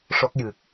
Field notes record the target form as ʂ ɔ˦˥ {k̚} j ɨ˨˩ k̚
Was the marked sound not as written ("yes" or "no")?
no